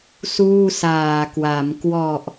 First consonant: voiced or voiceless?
voiceless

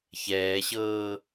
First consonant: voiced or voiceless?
voiceless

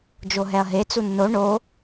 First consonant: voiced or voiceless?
voiced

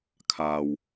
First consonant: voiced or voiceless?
voiceless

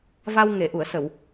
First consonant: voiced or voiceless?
voiced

